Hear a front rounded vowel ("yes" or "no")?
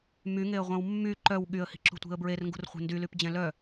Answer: yes